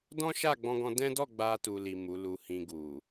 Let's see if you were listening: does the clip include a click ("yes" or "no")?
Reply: no